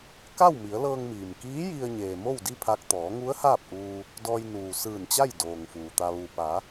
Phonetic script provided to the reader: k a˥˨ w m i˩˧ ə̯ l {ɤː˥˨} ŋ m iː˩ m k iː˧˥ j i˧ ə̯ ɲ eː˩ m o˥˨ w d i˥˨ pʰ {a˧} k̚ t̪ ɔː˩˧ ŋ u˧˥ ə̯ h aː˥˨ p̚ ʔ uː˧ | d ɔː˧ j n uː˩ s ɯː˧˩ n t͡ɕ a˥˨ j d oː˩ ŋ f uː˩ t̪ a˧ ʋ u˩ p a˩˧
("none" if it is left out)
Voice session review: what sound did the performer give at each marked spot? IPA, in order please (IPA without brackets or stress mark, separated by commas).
ɤː˧, a˧